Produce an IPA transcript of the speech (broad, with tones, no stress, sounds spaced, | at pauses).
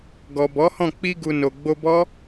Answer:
ɡ ɔ˨ b ɔ˨˦ h ɔ̃˦˨ k͡p i˧ ɡ u˨ n o˨ ɡ͡b o˧ b ɔ˦